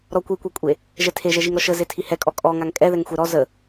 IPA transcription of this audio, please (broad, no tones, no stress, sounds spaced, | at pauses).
ɾ ɔ kʷ i kʷ e kʷʼ e | ʒ ɛ tʰ e ʒ ɛ ʒ i ŋ ɾ ɔ ʃ ə z e tʰ i h ɛ kʼ ɔ kʼ ɔ ŋ a ŋ kʼ ɛ ð ɛ ŋ xʷ e ɾ ɔ z ə